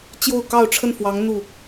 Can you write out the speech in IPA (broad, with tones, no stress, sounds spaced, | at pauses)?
t͡ɕ j o˥˧ ʊ̯ k ɑ˥˧ ʊ̯ ʈ͡ʂʰ ə˥˩ n f w ɑ˧˥ ŋ n̪ u˥˩